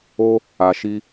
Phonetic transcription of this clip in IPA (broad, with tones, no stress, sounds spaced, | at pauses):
o˦ | a˨ ʃ i˧